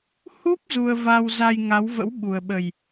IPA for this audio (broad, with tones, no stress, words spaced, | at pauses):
hu˦˥p̚ zu˧ə̯va˧wza˧j ŋa˨˦wvə̰˧˥w ɓu˨˩ə̯ɓə˨˩j